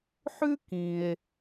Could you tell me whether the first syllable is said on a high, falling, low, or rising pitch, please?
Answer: high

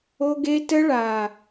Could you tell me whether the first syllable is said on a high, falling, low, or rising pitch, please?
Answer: high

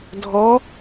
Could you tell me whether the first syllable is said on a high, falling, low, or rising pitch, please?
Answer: rising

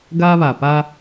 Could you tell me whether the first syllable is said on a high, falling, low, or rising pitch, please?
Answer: high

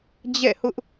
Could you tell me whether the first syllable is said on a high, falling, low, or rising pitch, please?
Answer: falling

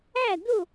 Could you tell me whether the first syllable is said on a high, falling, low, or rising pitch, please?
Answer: falling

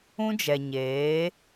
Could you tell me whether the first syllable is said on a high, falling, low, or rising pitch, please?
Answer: high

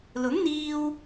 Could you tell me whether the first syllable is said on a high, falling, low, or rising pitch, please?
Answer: rising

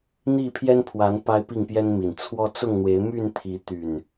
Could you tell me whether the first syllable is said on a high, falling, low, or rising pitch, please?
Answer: falling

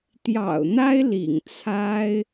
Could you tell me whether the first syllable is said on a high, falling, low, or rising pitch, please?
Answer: low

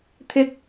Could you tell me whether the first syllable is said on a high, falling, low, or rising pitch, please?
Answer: low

